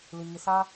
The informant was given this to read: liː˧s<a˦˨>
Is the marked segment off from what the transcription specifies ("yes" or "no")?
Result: yes